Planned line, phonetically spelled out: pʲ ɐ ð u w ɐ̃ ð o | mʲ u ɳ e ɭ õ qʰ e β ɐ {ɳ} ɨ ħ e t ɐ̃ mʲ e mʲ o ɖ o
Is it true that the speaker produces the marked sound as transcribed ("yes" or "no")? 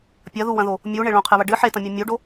no